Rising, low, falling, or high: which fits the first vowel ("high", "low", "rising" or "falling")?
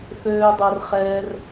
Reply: low